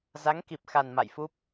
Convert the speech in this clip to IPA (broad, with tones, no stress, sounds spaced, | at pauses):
z a˨˦ ŋ k i˨˩ p̚ x a˨˩ n m a̰˧˨ j f u˦˥ p̚